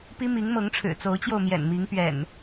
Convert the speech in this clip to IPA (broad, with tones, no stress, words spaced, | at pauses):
pi˦mi˨˦ŋmɤ˨˦ŋ ʈ͡ʂʰɻ̩˨˩t͡so˨˦ʊ̯t͡ɕjo˧ʊ̯ mjɛ̰˨˩nmi˨˦ŋ pɥɛ̰˨˩n